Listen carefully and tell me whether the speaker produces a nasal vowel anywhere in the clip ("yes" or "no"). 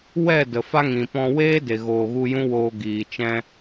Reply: yes